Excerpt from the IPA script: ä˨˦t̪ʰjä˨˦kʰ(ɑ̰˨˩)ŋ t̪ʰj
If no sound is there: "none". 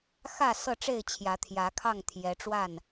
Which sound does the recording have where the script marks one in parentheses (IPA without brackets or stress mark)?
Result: ɑ˥˨